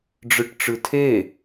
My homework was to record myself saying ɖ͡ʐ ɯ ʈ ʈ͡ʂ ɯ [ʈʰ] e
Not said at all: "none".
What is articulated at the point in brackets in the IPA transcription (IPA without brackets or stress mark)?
tʰ